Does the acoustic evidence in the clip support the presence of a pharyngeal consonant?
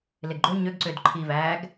no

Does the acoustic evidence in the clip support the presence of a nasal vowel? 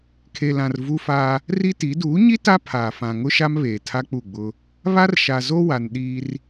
yes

